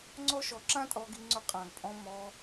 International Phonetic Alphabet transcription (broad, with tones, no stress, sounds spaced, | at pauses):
ŋ͡ǀ ɔ˦ ʃ ɔ˧ ǁ ã˦ tʼ ɔ˧ ɡ i˧ ŋ͡ǀ ʊ˧ qʼ ã˨ ɡ pʼ ɔ̃˧ m ɔ˧